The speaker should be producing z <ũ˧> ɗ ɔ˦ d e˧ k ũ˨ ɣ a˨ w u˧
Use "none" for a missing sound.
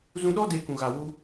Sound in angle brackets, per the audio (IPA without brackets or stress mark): ũ˧